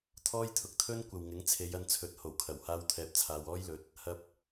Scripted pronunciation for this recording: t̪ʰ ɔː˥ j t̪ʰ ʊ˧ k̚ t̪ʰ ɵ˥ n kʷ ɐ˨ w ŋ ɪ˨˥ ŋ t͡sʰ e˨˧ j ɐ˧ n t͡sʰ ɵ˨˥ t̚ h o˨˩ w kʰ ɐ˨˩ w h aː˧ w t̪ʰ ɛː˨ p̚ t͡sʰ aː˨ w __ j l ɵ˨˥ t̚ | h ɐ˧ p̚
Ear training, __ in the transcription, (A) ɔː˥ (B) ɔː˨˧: A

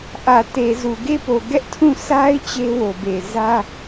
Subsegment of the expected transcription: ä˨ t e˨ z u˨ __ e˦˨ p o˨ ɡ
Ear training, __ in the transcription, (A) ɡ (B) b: A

